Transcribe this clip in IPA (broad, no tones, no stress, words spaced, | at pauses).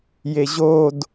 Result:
jeʑod